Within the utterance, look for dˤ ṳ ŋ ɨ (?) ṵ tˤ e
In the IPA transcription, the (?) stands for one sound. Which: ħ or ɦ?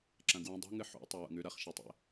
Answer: ħ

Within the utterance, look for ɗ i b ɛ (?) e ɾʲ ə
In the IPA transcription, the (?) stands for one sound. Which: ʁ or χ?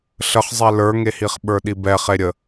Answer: χ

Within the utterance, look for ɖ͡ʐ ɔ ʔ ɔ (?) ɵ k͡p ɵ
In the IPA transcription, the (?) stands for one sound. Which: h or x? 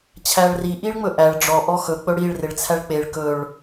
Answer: x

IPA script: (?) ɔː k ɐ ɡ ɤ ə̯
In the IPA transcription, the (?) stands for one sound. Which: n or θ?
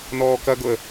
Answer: n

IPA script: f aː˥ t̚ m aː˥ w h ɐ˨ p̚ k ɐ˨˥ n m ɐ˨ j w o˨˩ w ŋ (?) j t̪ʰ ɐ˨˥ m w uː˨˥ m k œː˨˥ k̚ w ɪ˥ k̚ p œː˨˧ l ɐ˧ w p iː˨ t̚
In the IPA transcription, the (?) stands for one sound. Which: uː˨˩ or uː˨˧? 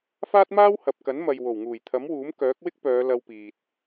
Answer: uː˨˩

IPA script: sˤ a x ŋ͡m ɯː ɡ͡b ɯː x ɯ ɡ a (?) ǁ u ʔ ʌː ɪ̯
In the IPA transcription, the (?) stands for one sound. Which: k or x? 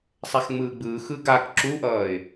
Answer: k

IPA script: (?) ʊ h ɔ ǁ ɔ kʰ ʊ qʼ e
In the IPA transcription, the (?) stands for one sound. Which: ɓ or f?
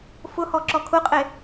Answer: f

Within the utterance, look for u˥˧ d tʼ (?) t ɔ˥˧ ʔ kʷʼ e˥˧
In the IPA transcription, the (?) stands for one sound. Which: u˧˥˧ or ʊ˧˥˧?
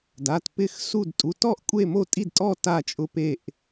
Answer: u˧˥˧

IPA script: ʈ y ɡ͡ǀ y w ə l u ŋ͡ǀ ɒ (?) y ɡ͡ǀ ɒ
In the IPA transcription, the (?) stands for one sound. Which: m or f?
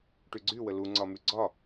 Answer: m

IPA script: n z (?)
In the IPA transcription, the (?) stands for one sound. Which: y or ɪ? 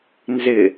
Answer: ɪ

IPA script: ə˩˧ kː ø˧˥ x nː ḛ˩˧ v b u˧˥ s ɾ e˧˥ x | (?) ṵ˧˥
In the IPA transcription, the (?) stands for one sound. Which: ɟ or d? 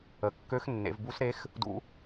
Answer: d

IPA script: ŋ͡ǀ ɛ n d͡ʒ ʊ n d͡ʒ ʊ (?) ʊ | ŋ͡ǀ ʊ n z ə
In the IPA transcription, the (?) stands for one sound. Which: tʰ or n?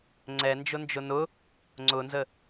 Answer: n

